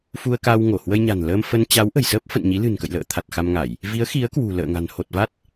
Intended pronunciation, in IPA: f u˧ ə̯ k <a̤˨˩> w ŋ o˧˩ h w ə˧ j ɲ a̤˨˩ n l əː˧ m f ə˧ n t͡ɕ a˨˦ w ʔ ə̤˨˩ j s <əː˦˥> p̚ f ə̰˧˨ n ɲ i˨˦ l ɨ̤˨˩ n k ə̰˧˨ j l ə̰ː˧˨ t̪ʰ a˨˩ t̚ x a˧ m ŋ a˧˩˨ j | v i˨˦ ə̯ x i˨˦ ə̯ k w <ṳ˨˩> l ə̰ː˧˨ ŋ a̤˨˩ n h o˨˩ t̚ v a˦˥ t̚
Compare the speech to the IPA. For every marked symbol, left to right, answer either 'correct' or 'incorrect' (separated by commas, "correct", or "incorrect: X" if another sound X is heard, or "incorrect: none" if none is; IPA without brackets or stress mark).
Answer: incorrect: a˧, correct, correct